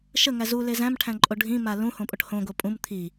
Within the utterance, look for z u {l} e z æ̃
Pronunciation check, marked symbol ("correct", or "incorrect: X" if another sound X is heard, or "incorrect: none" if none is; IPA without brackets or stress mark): correct